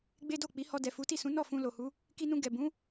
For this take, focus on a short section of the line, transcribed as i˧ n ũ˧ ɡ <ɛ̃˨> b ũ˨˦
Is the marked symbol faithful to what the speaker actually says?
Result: no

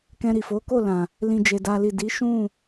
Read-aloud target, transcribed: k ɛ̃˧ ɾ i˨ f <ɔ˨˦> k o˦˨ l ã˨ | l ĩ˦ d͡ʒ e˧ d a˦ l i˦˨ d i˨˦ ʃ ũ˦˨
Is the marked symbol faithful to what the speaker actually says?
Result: no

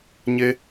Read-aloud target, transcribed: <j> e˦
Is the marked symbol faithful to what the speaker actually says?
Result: no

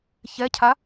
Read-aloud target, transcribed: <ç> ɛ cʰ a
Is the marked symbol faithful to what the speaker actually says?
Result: yes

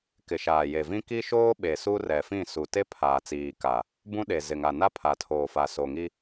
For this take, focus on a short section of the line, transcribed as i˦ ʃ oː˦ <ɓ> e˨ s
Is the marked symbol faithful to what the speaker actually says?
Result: yes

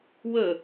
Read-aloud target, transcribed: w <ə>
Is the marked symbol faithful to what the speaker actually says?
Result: yes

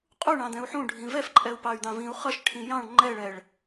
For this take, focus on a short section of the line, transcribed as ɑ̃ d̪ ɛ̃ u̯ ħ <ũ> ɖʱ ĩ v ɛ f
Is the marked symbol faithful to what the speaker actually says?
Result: yes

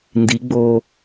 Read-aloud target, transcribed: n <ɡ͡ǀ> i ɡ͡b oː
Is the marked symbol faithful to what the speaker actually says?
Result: no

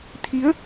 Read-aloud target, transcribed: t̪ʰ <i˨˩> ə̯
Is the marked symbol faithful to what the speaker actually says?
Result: no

